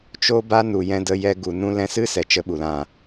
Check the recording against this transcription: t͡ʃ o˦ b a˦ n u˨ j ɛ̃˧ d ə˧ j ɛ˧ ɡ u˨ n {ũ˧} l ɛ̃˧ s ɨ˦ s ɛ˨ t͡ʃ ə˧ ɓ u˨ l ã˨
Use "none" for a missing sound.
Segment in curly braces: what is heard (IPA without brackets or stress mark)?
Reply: ũ˧